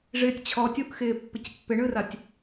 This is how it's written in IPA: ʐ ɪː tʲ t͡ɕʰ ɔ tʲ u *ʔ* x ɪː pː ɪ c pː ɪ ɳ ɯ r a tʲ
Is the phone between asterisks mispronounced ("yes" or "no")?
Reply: no